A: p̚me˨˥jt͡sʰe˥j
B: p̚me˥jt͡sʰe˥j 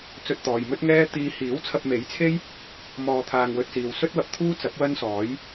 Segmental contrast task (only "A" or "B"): A